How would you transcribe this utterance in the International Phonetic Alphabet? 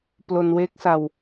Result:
p l o˧ n w e˦˥ k̚ s a˧ w

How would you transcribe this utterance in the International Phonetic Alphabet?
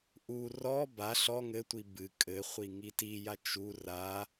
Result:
ʔ u r ɔ b a ɬ ɔ ŋ ɘ tʷ i b ɨ kʼ ɘ χʷ i ŋ i t i j a t͡ʃ u r a

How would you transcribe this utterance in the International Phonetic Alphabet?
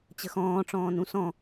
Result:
t͡ɕ ə x ɔ̃ː ʈ͡ʂ ɔ̃ː n ũ s ɔ̃

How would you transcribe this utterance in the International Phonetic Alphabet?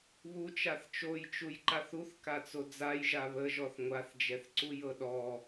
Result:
β u t͡ʃ a θ t͡ʃ o j t͡ʃ u j ǃ a θ u θ k a t͡s o d͡z a j ʒ a β ə ʒ ɔ θ ŋʷ a θ d͡ʒ ɛ θ ǀ u j ɤ ɗ ɔ

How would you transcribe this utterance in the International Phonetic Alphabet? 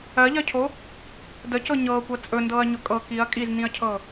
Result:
ɜ ʎ ɜ cʰ o | d ə c ɤ ɲ ɤː kʷ ɜ t͡sʼ ɵ n d ɤː ɐ̯ ɲ ɵ kʼ ɤ k i ɐ̯ kʼ i z n ĩ ɐ̯ cʰ ɤ

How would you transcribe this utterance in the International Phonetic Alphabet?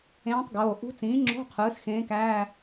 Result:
ẽː˧˥ tˤ ɡ oː˩˧˩ ʔ ṳ˧˥ t͡s ĩː˩˥ ŋ͡ǁ o̤˧˥˧ qʰ ɯː˩˥ s x ẽː˧˥ k æː˧˥˧

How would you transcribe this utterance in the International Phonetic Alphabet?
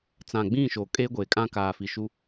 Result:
t͡s ã˨ ɡ͡b ĩ˦˨ ʃ oː˨ kʼ eː˦ ɡʷ eː˨ kʼ ã˦ k aː˨ f i˨ ʃ u˦

